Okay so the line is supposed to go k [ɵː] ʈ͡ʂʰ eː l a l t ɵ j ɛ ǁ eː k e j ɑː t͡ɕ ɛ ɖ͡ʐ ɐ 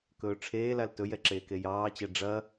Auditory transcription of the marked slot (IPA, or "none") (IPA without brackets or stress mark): ɵː